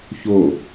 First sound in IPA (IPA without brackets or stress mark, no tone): ç